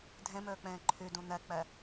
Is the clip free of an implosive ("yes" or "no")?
yes